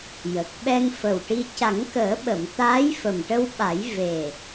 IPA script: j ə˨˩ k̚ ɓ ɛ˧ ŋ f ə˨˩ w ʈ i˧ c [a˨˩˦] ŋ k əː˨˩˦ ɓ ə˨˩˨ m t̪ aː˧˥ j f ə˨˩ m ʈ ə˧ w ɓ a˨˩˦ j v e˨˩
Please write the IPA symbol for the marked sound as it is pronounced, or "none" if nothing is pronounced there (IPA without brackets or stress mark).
a˨˩˦